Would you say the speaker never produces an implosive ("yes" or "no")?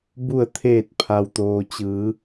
yes